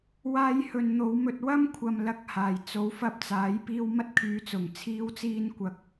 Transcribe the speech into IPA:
waː˧jhɵ˨n n̪o˨˧wmɵ˧t̚ wɐ˥mkʷʰɐ˨mlɐ˨k̚ haː˨˩jt͡so˨˥wfɐ˧p̚t͡saː˨˥j piː˧wmɐ˥t̚kʰyː˨˧t͡sʊ˨˩ŋ t͡sʰiː˥wt͡siː˥n kʷɐ˧k̚

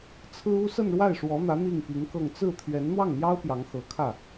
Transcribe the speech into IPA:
t͡sʰɹ̩˥u˥ sə˥˧nɻwa˥˩ɪ̯ʂwɔ˧˥n̪ä˧˥ n̪i˥˩ŋpi˧˥ŋkɤ˥˧ŋ t͡sɹ̩˥˩ t̪ʰɥɛ˧˥nn̪wɑ˥˩ŋn̪jɑ˥ʊ̯ pjɑ˧˥ŋxɤ˧˥kʰä˥˩

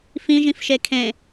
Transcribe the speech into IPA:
fĩʒĩfʃe kʰẽ

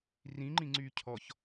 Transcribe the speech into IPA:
rĩŋ͡ǃĩŋ͡ǀyː cʰɔç

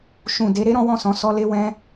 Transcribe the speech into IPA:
ʃũ˨ de˨˦ɾe˦ ɾɔ̃˦wɔ̃˦˨sɔ̃˧ sɔ˦le˦wɛ̃˦

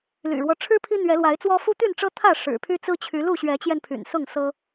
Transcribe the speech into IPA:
ly̰˨˩ɻwɔ˦ ʈ͡ʂʰɻ̩˦ pʰi˦n̪ɥɛ˨˦lwa˨˦ɪ̯t͡swɔ˦ fu˦t̪y˥˨nʈ͡ʂɤ˦ t̪ʰä˥˨ ʂɻ̩˨˩pʰy˦t͡sɹ̩˦t͡ɕʰy˨˦ lu˥˨ɕɥɛ˨˦t͡ɕjɛ˧npʰy̰˨˩n sʊ˥˨ŋsɤ˦

